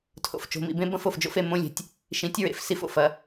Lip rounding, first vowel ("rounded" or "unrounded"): rounded